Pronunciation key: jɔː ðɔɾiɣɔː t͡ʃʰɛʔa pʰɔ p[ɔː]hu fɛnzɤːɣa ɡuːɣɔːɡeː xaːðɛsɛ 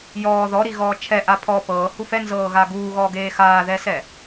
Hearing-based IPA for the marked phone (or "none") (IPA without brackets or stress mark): ɤː